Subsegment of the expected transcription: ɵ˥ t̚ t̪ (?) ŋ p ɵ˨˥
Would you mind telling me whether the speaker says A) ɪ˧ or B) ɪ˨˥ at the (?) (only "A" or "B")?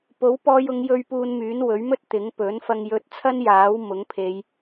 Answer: B